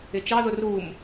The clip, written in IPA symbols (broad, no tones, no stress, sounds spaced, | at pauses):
ɪ t͡ʃ ɑ ð ʊ r u m